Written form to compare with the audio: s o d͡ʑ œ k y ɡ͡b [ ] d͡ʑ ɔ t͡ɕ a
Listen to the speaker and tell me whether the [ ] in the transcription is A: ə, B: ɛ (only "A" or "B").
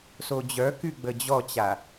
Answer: A